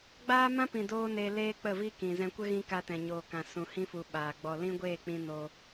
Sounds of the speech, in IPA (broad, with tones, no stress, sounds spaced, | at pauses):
ɡ͡b aː˦ m ã˦ p ĩ˨ d oː˦ n e˧ l eː˦ k͡p ə˦˨ v i˦ k ĩ˨ z ɛ̃˧ kʷ ə˦ ɣ ĩ˧ k a˧ t ɛ̃˨ ɲ oː˨ k ã˨ s ũ˨ h ĩ˧ f u˨ ɓ aː˨ ɡ͡b ɔ˧ l ĩ˦ ɡʷ eː˦˨ k͡p ĩ˧ n oː˧